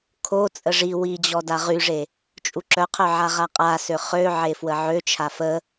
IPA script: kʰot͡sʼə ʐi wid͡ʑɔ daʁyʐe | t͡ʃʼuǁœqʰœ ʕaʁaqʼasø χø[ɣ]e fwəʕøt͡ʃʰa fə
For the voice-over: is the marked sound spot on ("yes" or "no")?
no